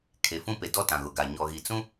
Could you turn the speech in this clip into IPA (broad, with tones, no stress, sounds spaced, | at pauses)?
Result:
kʰ e˨ f ũ˦ p e˨ d ɔ˦ t ã˨ ɣ ʊ˨ ɡ a˨ ɲ ɔ˨ ɣ i˨ t͡s ũ˦